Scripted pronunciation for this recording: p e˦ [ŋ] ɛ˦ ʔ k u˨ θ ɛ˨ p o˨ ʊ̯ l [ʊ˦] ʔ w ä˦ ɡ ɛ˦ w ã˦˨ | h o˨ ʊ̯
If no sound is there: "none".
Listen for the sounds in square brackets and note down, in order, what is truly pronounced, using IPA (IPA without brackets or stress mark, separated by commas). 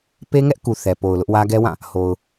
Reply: ŋ, ʊ˦